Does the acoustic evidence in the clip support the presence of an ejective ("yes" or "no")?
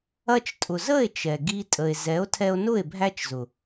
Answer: yes